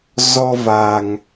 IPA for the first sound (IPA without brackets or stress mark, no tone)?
z